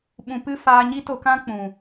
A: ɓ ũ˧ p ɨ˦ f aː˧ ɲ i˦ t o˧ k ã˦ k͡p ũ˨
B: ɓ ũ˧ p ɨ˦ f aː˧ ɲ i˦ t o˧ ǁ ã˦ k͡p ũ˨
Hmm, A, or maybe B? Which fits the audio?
A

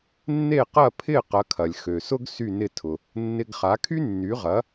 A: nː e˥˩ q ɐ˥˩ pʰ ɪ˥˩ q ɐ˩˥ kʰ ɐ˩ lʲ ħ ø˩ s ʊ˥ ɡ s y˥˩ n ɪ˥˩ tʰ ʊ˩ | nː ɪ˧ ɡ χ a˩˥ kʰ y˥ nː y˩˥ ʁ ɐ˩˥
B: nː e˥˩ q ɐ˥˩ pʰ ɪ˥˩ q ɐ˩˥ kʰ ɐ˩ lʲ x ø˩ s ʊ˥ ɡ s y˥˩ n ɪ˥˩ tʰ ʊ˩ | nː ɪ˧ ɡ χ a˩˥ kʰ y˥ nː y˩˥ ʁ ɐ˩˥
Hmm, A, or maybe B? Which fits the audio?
B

